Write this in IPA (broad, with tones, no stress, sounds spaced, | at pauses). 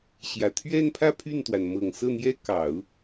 ɕ j ä˨˩ t̪ʰ ɥ ɛ˥˧ n pʰ ä˥˧ pʰ y˥˩ n t̪ w a˩ n m ɤ˨˩ ŋ s ɤ˥˩ n̪ j ɛ˥ k ɑ˨˩˦ ʊ̯